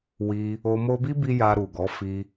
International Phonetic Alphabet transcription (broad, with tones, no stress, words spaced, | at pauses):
wi˧ | o˧mo˦ bi˦bi˧ ja˧ɾu˨ɡɔ˨˦ fi˧